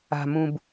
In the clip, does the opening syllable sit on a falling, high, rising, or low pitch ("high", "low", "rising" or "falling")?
low